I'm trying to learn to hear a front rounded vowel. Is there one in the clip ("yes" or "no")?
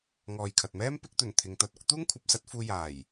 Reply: no